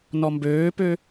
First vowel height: mid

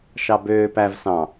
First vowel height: low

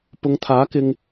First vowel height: high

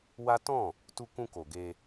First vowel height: low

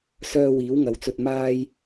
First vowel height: mid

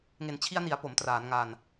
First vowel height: mid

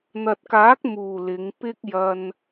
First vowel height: low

